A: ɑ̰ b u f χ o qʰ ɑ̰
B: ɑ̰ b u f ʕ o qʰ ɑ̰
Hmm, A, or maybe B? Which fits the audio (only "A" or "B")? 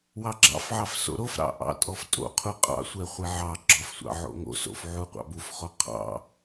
A